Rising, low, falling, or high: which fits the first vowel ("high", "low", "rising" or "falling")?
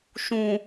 low